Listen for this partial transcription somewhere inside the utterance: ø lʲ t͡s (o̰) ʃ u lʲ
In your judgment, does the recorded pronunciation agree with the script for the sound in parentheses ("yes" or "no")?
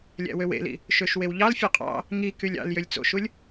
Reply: yes